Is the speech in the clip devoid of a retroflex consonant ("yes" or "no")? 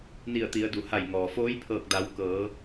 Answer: yes